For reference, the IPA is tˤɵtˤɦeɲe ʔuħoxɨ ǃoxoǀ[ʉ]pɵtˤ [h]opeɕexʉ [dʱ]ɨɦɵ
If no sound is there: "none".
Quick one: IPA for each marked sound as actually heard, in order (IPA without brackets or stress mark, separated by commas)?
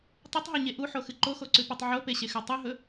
ʉ, ʕ, tˤ